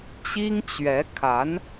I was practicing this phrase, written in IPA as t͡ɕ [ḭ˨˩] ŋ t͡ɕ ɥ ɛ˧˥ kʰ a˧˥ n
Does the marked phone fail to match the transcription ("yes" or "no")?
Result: yes